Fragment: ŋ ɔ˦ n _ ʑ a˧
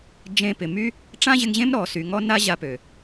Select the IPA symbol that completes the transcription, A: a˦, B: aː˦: A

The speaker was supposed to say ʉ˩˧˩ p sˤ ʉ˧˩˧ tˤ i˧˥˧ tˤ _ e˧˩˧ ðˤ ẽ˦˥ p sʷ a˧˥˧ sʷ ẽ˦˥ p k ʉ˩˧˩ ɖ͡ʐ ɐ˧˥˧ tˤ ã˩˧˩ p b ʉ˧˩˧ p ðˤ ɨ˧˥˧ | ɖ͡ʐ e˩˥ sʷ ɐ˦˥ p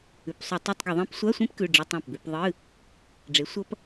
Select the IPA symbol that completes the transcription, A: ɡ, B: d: A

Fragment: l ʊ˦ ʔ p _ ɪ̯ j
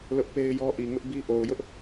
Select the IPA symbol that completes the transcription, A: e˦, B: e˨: A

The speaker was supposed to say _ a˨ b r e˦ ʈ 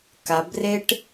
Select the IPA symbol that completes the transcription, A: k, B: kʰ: A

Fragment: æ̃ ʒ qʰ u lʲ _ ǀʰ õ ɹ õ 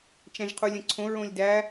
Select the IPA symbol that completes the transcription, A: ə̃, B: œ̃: A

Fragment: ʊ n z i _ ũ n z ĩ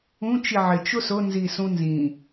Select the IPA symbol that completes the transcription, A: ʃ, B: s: B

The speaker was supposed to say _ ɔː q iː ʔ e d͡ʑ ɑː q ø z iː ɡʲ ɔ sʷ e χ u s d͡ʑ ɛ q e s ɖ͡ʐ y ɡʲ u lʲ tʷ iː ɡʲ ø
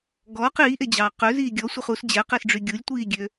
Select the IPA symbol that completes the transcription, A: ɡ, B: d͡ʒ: A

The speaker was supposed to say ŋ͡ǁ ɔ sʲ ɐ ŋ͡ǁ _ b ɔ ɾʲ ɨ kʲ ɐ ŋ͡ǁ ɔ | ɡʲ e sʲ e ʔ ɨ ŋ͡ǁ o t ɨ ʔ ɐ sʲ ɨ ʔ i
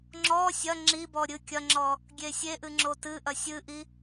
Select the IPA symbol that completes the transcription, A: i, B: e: A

